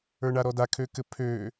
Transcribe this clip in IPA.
ə˞ ɳ a ɾ ɔ d a kʰ ø k ɘ pʰ ø

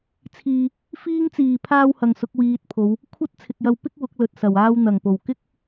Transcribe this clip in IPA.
t͡sʰ iː˨ | f iː˧ ŋ t͡s iː˨˩ pʰ aː˥ w h ɐ˨ ŋ s ʊ˨˥ k̚ w iː˨ t̚ pʰ o˨˧ w | kʷʰ ɐ˥ t̚ t͡sʰ ɪ˨ k̚ j ɐ˧ w p ɪ˥ k̚ w ʊ˨˥ k̚ l ɵ˨ t̚ s ɐ˨˩ w aː˧ w n̪ ɐ˨˩ ŋ p o˨˩ w k ɪ˥ k̚

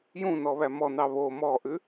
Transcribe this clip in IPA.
j ũ n ɔ β æ m ɔ n ɑ β o m ɔ ʔ ʉ

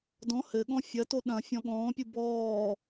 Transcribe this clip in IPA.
d ɔ̃ h ɘ ɠ ɔ̃ fʲ ɐ t o ɗ ɐ̃ fʲ ɔ̃ ɠ ɔ̃ː pʲ u b ɔː

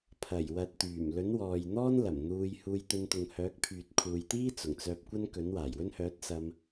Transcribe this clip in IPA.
pʰ ɐ˨˩ j w ɐ˨ t̚ t̪ yː˨˩ m l ɵ˨˥ n w ɔː˨ j n̪ ɔː˥ n l ɐ˨˩ m n̪ uː˧ j h uː˧ j t̪ ɵ˧ n t̪ ʊ˨ ŋ h œː˨˥ k̚ pʰ yː˨ t̚ kʰ uː˨ j t̪ iː˥ t͡s ʊ˨˩ ŋ t͡s œː˧ p̚ kʷ ɐ˥ n k ɵ˨˥ n w aː˨˩ j w ɵ˥ n h œː˨˥ t̚ s ɐ˧ m

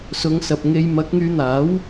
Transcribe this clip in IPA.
s ʊ˨˧ ŋ s ɐ˨ p̚ ŋ e˧ j m ɐ˨˥ k̚ ŋ yː˨˧ n̪ aː˨˥ w

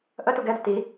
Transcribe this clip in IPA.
ʔ ə t u ɡ ɛ d ə t i

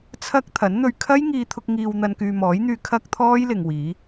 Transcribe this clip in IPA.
t͡sʰ ɐ˥ k̚ t̪ʰ ɐ˨˥ n n̪ ɵ˧ ɥ kʰ ɐ˥ j ŋ iː˧ t̪ʰ ʊ˧ k̚ ŋ iː˨ w n̪ ɐ˨ n k yː˨ m ɔː˨˥ j n̪ yː˧ kʰ ɐ˥ k̚ t̪ʰ ɔː˥ j l ɪ˨ ŋ w iː˨˧

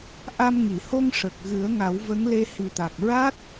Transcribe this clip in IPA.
ʔ a˧ m ŋ i˨˩˨ h o˧ ŋ ʂ ə˨˩ k̚ ɣ ɨ˨˩˦ ə̯ ŋ a˨˩˦ w v ə˧˥ ŋ l e˧ h i˨˩ t̪ a˨˩ k̚ ɹ a˦˥ t̚

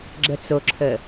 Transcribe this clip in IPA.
ɡ͡ǁ ə t͡s o ǁʰ ə

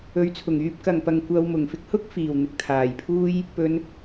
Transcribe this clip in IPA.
ɵ˨˥ ɥ t͡sʰ ʊ˨˩ ŋ yː˧ p̚ k ɐ˨˩ ŋ p ɐ˨˩ ŋ kʷ ɐ˧ w m ʊ˨˩ ŋ f ɪ˧ k̚ h ʊ˥ k̚ f iː˨˩ w n̪ ɪ˨ k̚ t̪ʰ aː˨˩ j pʰ uː˥ j | p ɵ˨˧ n

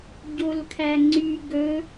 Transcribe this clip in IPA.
ɟ o l kʰ æ ŋ͡ǀ y ɡ ɵ

